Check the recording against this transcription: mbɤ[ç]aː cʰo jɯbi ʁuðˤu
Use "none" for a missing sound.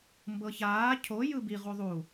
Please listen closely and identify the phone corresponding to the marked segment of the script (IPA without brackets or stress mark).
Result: ç